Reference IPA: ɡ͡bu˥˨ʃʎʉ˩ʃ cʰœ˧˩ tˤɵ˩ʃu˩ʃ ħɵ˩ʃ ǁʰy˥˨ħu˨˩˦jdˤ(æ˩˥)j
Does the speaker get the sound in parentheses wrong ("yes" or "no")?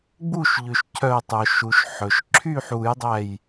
yes